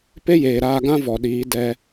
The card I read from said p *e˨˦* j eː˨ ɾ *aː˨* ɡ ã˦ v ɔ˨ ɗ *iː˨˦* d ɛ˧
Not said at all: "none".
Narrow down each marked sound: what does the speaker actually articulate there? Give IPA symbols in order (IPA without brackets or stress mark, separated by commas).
e˦, aː˧, iː˨˦